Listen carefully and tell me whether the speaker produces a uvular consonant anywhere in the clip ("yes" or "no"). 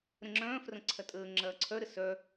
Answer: no